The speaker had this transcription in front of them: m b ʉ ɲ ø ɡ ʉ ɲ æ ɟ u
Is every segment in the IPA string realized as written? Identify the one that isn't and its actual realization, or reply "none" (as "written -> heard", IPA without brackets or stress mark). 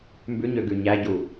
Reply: none